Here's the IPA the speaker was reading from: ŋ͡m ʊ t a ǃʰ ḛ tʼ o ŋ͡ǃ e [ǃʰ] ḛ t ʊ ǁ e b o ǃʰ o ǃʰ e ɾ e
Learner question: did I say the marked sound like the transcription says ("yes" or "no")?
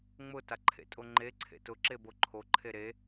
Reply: no